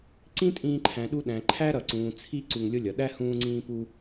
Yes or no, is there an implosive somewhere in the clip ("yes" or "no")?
yes